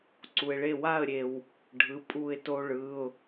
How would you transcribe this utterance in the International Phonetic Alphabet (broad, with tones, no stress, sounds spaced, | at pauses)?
ǀ u˧ ɪ̯ ɭ e˥˧ w a˥˧ ə̯ ɾʲ e˧ w | ɖʱ ɯ˧˥˧ pʼ u˥˧ ɪ̯ t o˥ ɭ ɯ˧˥˧ ʊ̯